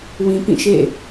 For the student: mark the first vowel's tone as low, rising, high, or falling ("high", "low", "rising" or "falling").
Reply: low